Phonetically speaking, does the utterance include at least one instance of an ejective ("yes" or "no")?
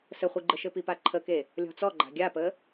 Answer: no